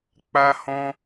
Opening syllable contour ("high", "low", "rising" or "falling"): high